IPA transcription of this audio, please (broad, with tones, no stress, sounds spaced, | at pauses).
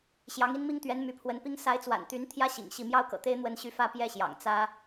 ɕ j ɑ˧˥ ŋ i˥ n m i˥ ŋ t̪ ɥ ɛ˧˥ n m y˧˥ pʰ w ə˧˥ n p i˥ ŋ s a˧˥ ɪ̯ t͡s w a̰˨˩ n t̪ y˧˥ n t̪ʰ j ä˥ ɕ ḭ˨˩ ŋ ɕ i˥˩ m j ɑ˥ ʊ̯ k ɤ̰˨˩ t̪ e˥ ɪ̯ n̪ w ə˥˧ n ɕ y˥˩ f ä˥ p j ɛ˥ ɕ j ɑ̰˨˩ ŋ t͡s ä˥